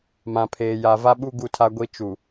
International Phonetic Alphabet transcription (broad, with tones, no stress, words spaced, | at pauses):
mã˨pʰeː˨ja˨ va˦ɓu˦ ɡu˦tʰa˦ɡʷi˦ t͡ʃu˨